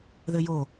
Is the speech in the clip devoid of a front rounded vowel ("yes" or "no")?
yes